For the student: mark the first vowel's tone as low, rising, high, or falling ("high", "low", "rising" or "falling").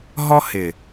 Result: high